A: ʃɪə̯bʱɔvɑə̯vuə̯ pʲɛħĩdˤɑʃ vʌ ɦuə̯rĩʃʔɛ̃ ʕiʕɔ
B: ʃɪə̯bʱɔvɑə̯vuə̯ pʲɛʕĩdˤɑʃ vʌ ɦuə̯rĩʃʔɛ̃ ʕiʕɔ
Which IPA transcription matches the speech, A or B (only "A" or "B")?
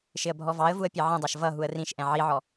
B